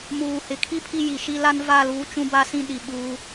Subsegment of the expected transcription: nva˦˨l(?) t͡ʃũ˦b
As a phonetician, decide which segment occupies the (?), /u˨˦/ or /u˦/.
u˨˦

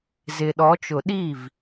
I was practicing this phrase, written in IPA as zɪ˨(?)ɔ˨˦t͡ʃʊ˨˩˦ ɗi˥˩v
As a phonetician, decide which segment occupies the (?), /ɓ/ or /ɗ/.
ɗ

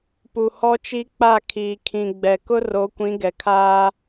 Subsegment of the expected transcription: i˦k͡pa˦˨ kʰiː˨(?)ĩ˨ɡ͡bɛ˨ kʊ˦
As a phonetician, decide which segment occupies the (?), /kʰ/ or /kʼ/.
kʰ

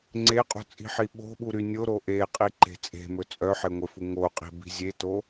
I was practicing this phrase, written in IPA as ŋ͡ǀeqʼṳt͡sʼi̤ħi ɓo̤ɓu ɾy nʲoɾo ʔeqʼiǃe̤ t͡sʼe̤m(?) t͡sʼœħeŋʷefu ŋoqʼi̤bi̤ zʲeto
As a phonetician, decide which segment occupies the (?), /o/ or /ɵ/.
ɵ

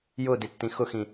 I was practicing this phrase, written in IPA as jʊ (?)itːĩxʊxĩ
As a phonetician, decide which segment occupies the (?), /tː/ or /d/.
d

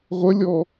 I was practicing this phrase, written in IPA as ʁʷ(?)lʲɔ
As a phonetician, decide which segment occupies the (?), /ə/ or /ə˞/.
ə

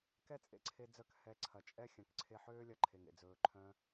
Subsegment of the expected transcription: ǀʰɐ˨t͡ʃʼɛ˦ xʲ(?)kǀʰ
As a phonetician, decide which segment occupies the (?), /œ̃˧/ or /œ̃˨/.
œ̃˨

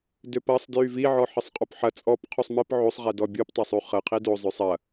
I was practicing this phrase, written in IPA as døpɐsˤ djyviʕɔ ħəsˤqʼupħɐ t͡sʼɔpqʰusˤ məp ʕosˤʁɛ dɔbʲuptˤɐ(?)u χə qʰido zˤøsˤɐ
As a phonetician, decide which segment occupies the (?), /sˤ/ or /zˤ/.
sˤ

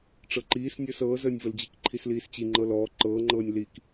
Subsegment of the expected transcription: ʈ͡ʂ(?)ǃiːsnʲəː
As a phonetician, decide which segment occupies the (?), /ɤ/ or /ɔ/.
ɤ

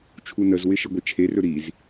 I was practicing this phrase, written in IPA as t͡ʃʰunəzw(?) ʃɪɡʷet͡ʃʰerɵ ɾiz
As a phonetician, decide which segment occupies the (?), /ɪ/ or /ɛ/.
ɪ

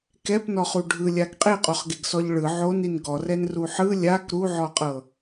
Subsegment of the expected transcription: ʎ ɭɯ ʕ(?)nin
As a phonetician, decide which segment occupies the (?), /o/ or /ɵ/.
o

